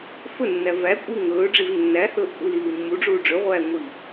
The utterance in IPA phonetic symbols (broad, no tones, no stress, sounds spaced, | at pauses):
f ɵ nː æ v æ kʷʼ i ŋ ɵː ɖ͡ʐ i v nː æ h ɵː ʔ kʷʼ i l iː mː u ɖ͡ʐ uː ɖ͡ʐ ɵ ʁʷ æː ŋʷ iː